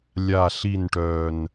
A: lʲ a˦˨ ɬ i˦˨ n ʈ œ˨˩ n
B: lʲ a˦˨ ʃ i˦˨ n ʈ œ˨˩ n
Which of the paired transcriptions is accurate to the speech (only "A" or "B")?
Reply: A